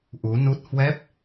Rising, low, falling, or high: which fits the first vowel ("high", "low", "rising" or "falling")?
rising